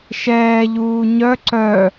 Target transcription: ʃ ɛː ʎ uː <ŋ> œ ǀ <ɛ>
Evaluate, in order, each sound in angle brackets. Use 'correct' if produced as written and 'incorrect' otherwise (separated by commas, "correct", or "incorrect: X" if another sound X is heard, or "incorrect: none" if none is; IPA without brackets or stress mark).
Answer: incorrect: ɲ, incorrect: œ